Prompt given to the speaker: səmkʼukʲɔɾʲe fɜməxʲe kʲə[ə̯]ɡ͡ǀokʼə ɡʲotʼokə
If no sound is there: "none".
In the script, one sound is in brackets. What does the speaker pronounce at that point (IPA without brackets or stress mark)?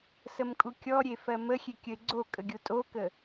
ɪ̯